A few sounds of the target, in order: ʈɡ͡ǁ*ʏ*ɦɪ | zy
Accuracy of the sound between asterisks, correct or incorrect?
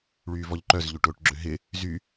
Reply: correct